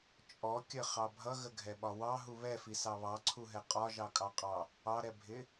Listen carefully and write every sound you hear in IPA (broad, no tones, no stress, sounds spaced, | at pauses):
t͡ʃʼ ɔ kʲ ə χ ɑ bʱ ʌ ɣ ə ɡʱ ɛ ɓ ɒ w ɑ ɦ u β ɛ f i s ɑ β ɑ ǀʰ u ɦ ɛ qʼ ɒ ʒ ɑ kʼ ɑ qʼ ɑ | ɑ ɾ ɛ bʱ ɪ